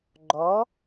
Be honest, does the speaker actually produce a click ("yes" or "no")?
yes